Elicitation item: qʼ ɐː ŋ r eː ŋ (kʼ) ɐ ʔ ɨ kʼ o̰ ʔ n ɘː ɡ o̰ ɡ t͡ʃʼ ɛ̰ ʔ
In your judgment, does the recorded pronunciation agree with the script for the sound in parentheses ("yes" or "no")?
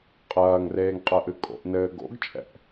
no